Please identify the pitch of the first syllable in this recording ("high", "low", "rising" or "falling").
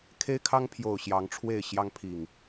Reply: high